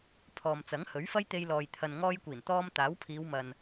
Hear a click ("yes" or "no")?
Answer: no